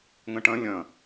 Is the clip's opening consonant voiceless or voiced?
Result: voiced